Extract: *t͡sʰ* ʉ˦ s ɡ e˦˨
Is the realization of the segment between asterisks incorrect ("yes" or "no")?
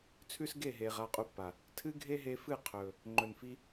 no